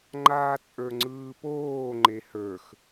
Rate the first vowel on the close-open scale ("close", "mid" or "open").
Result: open